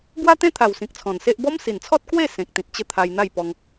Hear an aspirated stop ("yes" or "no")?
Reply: yes